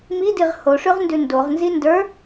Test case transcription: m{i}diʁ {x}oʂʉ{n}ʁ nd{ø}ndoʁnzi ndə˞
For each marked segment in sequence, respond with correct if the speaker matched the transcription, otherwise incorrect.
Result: correct, incorrect, incorrect, incorrect

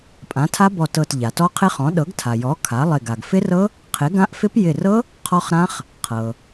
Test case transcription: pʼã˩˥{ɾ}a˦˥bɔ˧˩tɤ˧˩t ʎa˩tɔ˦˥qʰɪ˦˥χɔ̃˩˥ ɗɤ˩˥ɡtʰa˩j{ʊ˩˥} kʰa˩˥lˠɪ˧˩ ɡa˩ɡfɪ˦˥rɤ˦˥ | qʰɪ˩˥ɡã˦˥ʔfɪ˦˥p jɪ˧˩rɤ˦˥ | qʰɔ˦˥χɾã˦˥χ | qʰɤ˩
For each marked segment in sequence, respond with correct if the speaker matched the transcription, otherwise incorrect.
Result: incorrect, incorrect

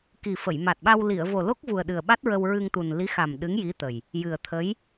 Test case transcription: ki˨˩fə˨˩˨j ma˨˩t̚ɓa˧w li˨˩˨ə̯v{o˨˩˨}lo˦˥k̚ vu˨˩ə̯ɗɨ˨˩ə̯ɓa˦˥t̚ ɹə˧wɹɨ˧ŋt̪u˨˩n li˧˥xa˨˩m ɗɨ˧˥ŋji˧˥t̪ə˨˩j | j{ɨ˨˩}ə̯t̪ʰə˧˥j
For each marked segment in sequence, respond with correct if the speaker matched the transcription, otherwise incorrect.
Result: incorrect, correct

